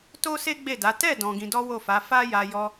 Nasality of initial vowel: oral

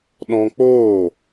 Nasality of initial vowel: nasal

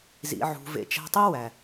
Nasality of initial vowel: oral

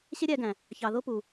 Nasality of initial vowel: oral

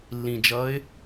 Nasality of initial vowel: nasal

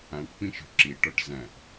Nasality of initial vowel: nasal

